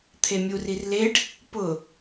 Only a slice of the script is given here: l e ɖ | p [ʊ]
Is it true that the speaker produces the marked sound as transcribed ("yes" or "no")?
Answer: yes